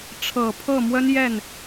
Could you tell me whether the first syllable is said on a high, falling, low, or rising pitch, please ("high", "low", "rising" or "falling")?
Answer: low